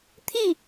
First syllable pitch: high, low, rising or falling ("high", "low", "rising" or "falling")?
falling